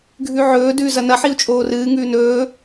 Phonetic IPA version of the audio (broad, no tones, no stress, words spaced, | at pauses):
ɡʱʉʕɵː dʉːzɐnɐ ħiu̯t͡ʃʼoːrɨː ŋʉːnɵː